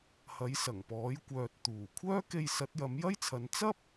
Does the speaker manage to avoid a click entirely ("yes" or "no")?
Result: yes